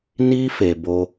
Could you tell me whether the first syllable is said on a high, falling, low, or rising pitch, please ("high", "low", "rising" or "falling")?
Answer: high